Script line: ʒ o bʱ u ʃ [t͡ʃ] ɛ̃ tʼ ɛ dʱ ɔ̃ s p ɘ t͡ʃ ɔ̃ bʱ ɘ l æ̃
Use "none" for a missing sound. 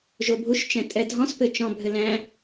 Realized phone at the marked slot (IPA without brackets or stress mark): t͡ʃ